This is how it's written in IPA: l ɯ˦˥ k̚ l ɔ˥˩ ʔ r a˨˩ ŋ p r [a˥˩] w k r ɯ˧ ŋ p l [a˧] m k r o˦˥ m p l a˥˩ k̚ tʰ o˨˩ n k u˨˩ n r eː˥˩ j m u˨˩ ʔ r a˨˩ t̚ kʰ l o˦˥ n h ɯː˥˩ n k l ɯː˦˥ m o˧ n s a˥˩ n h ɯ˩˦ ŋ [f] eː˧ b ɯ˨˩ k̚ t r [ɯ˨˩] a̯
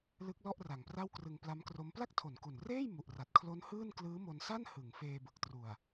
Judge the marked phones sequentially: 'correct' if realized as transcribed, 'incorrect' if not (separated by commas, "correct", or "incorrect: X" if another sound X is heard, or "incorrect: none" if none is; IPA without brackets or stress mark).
correct, incorrect: a˦˥, correct, incorrect: u˨˩